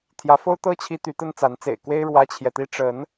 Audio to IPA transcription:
t̪ʰjä˨˦fo˦ʊ̯ t̪ɤ˦ t͡ɕʰi˦t̪y˨˦t̪ə˦nt͡sa˨˦n t͡sḛ˨˩ɪ̯kwe˦ɪ̯ ɻwä˦t͡ɕʰjɛ˨t̪i˦ ʈ͡ʂə˨˦n

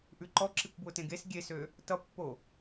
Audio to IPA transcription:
ʔʉǃɔǁikʷ bwʊtẽɡes ɡʲesø | tʌpːo

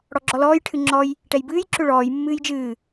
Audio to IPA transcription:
ɽɔɡ͡ǁɔlɔːj ʈʰɨŋ͡ǁɔj | ʈɛjbɨːj ǁʏɭɔːj mːɨːjd͡ʒɨː

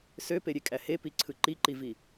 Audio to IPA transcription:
søpeɾʲekʼæ hepiǀʰɯ ǃiǃivi

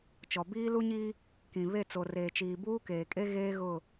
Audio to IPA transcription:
t͡ʃɔ˨biː˦lu˦ɲiː˦ | kĩ˨βe˦˨ t͡so˨reː˨t͡ʃiː˨ buː˦keː˨kʼe˦ ɣeː˦ɣʊ˦˨

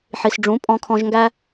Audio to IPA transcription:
ħi˨s ɖ͡ʐũ˨˦pʼɔ̃˧kʰɔ̃˧ʒŋɡæ˦

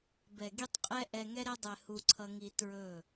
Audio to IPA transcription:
bɛ˨ɡi˧tˤ qʼɛ˦ ʔɛ˧ŋɛ˦ ɾɛ˧dˤɛ˨ hu˧ǀʰʌ˧ŋi˧ tɹɵ˦˨

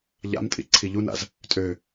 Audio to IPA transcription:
ʎa̰mtʼḭ ǀʰiʎuna̰z | tʼø

